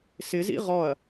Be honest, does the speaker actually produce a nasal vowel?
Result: no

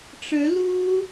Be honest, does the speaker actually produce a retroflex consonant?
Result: yes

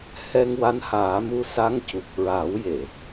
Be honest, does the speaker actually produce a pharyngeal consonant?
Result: no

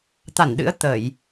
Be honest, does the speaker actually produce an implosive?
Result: yes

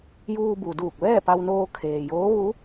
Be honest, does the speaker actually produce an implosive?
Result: no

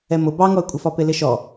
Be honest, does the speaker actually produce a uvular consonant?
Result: no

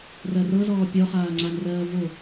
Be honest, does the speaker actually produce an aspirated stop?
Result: no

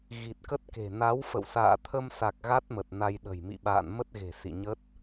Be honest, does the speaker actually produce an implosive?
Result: yes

